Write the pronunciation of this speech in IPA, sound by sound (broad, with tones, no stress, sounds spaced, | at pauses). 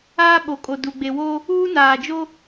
aː˦ ɓ o˨ kʼ o˨ d u˨ ɡ͡b e˨ w o˦ | uː˦ n aː˨ d͡ʒ o˦